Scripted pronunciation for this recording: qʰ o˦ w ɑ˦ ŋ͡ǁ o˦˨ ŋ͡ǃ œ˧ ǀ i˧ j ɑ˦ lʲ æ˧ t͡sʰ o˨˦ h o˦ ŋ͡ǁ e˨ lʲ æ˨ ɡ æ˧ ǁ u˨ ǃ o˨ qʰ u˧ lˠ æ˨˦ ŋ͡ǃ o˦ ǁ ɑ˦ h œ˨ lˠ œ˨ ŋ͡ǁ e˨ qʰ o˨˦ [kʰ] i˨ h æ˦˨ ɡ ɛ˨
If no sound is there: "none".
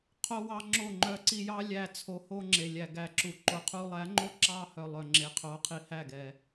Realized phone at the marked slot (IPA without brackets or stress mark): qʰ